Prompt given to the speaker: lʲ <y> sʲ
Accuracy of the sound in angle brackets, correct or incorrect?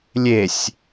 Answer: incorrect